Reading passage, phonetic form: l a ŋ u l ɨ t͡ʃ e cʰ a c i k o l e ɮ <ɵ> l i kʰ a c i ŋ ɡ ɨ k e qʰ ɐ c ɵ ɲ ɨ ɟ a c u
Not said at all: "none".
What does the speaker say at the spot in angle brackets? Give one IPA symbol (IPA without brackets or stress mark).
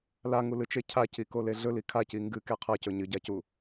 ɵ